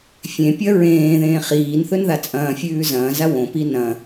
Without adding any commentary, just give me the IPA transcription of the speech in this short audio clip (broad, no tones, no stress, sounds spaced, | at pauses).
fʲ ẽ pʲ ɐ ɹ ẽː ð ẽː χ iː n θ ɵ n ð a t͡sʼ ɐ̃ː fʲ ʉː z ɐ̃ː z a w õ p i n ɐ̃